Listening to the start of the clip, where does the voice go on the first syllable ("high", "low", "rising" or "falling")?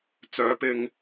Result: rising